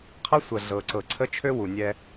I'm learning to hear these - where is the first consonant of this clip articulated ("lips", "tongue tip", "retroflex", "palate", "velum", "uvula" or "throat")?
uvula